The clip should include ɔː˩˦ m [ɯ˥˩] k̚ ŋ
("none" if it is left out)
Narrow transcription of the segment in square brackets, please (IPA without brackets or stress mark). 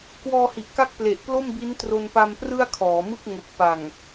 ɯ˥˩